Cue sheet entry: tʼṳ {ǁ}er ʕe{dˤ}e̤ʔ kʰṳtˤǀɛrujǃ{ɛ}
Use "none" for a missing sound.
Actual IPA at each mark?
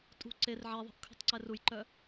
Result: ǀ, ðˤ, œ

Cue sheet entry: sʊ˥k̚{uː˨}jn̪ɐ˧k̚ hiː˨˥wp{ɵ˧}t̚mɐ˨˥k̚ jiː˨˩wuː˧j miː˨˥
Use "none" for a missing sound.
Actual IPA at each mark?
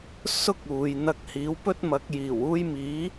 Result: uː˨, ɵ˥

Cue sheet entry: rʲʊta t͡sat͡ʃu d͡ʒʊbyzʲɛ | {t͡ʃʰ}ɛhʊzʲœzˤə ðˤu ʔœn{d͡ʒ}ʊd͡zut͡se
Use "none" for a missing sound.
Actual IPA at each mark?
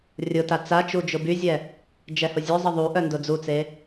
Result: d͡ʒ, d

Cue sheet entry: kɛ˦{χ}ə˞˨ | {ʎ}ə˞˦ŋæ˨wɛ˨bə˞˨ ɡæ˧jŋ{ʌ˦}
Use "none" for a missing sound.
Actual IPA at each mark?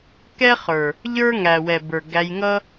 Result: χ, ʎ, ʌ˦

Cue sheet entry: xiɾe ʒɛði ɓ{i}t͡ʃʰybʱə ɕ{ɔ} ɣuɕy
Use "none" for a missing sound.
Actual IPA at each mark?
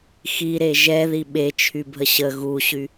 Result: e, ə

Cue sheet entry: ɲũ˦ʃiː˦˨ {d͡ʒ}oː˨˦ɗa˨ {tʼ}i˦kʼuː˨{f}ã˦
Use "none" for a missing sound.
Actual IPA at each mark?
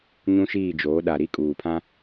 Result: d͡ʒ, ɾ, pʰ

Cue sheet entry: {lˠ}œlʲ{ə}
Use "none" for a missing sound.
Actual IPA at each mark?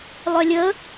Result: lˠ, ə

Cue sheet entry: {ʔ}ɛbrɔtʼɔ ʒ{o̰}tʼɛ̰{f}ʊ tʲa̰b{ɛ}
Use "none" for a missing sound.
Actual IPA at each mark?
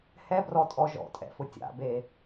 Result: h, ɔ̰, f, e

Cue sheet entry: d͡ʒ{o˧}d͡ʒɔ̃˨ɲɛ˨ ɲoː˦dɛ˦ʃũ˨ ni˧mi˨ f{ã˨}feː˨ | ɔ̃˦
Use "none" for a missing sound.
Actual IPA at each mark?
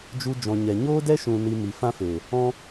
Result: u˧, ã˦

